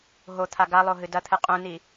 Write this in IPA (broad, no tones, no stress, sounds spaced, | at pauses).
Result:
ɦ o t̪ʰ a ɡ a lˠ o ɦ ɨ d ɐ t̪ʰ ɨ qʼ ũ n i